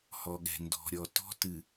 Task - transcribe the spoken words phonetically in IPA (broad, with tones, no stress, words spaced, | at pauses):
hɔ˨ɠɛ̤˨ ndɔ̤˨ɾʲɔ˨ tɔ̤˦tɨ˨